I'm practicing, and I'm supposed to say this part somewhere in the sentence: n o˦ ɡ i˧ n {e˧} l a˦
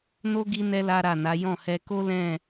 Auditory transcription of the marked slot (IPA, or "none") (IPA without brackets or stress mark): ɛ˧